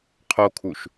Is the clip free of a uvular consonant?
no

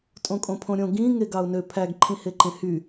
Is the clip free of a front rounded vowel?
no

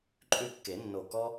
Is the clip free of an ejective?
no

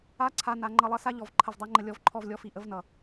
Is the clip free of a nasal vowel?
yes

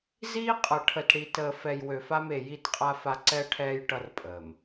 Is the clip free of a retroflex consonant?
no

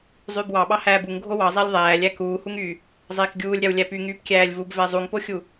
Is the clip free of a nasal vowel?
yes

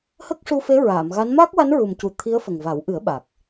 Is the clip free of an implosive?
no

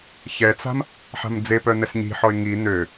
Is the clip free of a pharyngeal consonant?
no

